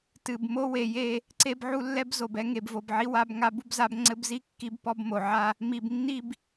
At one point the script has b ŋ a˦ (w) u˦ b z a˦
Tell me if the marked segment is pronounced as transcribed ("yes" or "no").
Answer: no